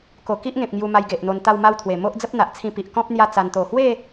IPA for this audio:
k o˨˩ k i˦ ʔ ŋ ẽ˨ p̚ ŋ j u˧ m a˧ j ɡ e˨ ʔ n̪ o˧ n t̪ a˥˧ w m a˥˧ w t̪ʰ w e˨˩ m o˦ ʔ d͡z ə˦ p̚ n̪ a˨ ʔ t͡sʰ ĩ˧ p i˨ ʔ k ɔ̃˦ p̚ n̪ j a˥˧ t͡s a˧ n t̪ o˨˩ h w e˥˧

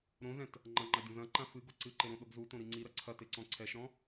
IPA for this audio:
ɾ õ z ɛ̃ t | ŋ͡ǃ ɐ̃ ŋ͡ǃ a dʲ ɔ̃ z ɐ̃ ǃ ã f ɨ ɡ o ǀ ɨ ǃ e ɾ õ ɗ o ɡ z u t õ ɾ i ŋ͡ǀ i ɾ ɐ ǀʰ ɐ t e ǀ ɔ̃ ǀʰ ɛ ʃ ɾ ɔ̃

